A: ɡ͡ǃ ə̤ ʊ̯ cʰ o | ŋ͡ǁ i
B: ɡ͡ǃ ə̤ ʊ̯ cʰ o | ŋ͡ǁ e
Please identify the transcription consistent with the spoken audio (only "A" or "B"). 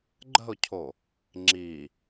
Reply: A